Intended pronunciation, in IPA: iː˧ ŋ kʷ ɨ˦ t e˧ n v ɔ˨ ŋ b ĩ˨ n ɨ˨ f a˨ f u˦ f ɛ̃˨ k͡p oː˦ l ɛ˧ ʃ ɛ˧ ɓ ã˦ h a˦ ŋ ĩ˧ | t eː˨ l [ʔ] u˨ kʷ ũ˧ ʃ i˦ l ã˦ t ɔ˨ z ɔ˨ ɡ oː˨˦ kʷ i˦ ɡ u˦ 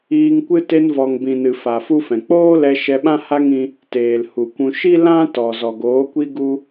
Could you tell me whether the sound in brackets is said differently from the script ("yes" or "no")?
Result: yes